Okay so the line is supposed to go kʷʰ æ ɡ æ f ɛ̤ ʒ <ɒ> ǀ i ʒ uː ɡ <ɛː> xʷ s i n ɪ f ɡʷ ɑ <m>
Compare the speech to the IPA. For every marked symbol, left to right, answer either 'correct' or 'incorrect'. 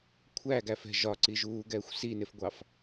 correct, correct, incorrect: f

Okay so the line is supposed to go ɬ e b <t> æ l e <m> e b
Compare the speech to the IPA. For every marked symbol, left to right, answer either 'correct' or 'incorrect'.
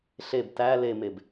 correct, correct

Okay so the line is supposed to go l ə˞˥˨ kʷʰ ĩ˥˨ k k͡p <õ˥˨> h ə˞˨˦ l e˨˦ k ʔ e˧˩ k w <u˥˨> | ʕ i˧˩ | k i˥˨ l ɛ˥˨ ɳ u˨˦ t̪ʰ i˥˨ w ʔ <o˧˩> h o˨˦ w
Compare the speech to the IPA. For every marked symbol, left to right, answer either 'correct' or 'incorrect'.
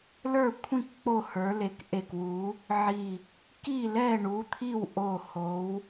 incorrect: o˥˨, incorrect: u˨˦, correct

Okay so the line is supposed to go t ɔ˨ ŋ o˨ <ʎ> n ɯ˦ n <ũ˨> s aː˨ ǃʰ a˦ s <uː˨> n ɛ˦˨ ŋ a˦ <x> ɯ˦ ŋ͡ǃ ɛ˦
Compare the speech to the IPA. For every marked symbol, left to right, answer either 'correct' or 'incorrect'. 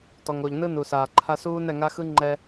correct, incorrect: u˨, incorrect: uː˦, correct

